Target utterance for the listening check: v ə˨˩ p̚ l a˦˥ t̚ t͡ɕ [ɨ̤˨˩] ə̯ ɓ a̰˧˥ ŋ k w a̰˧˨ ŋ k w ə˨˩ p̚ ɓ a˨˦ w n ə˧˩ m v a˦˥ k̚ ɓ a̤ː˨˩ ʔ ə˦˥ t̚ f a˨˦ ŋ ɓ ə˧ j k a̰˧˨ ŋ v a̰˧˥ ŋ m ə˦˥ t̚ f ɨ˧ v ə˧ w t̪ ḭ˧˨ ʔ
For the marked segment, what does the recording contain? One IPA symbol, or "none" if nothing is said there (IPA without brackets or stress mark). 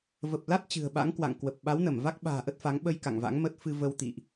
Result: ɨ̤˨˩